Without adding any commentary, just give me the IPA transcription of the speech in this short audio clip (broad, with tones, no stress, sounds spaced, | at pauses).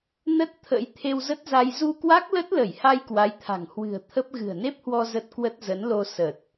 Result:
n ə˦˥ t̚ t̪ʰ ə̰˧˥ j t̪ʰ e˧ w z ə˦˥ t̚ z a˧ j z u˧ k w a˦˥ k̚ l ə˦˥ t̚ l ə˧˩ j h a˧ j k w a˨˦ j t̪ʰ a̤˨˩ ŋ h w ɨ̤˨˩ ə̯ t̪ʰ ə˦˥ p̚ ɣ ɨ̤˨˩ ə̯ n e˦˥ p̚ h w ɔ˧ z ə˦˥ t̚ k w ə˦˥ t̚ z ə˨˦ n l o˧ s ə˨˩ t̚